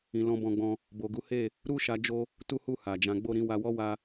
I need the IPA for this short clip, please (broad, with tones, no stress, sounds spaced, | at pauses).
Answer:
ĩ˨ l ɔ̃˧ b ɔ̃˧ ɡ͡b ɔ̃˧ | b o˨ ɡ u˨˦ h e˦˨ | ɾ u˦ ʃ a˧ d͡ʒ o˦ | t u˦ h u˦˨ h a˨ d͡ʒ ã˨˦ ɡ͡b o˦˨ ɾ ĩ˨˦ w a˧ w ɔ˦ w a˧